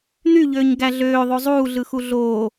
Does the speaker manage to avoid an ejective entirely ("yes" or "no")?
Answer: yes